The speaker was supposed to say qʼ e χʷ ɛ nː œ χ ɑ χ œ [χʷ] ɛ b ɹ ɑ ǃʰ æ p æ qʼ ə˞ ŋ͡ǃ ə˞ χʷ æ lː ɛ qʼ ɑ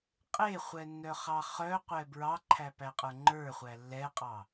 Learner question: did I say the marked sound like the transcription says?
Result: no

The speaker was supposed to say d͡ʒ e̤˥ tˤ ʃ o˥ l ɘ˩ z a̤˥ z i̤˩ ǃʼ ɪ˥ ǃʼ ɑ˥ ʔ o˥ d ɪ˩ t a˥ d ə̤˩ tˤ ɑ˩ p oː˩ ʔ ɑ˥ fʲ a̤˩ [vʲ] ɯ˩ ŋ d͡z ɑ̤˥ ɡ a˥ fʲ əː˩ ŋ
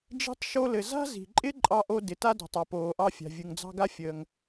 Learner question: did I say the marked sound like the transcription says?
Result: yes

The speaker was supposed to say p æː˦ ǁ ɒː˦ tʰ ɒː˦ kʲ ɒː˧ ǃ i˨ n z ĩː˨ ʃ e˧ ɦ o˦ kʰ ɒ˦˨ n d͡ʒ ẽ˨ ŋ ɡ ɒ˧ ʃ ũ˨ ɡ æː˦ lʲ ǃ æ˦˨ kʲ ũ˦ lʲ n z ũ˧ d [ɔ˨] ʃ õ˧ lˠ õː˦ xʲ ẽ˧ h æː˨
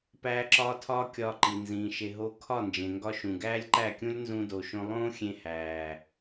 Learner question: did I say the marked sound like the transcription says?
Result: no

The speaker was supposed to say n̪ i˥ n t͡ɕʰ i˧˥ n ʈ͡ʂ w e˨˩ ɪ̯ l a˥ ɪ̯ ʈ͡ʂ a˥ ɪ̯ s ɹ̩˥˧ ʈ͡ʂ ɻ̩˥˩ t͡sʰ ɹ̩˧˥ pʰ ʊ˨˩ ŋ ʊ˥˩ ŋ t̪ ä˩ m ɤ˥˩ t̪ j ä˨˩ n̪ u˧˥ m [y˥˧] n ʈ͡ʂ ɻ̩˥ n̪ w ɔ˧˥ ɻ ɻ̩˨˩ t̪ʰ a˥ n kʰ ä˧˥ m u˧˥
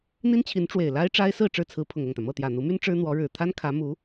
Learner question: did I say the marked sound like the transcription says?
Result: no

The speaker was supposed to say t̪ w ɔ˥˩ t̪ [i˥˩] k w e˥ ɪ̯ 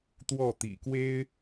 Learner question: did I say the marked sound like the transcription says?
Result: no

